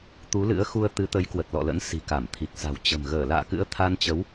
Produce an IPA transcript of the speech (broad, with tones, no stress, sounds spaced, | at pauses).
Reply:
t̪ u˨˦ l ɨ̰˧˥ ə̯ x u˧ ə̯ t̪ ɨ˨˦ t̪ ə˨˦ j k w ə˨˩ t̚ l ɔ̰˧˨ l ə̰˧˥ n s i̤˨˩ k a˧˩ m t̪ʰ i˨˩ k̚ s a̤˨˩ w t͡ɕ ə̤˨˩ m ɣ əː˧˩ l a̰ː˧˨ k ɨ̰˧˥ ə̯ t̪ʰ a˧ n t͡ɕ ə˨˦ w